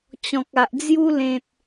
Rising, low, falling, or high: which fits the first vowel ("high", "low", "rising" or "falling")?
low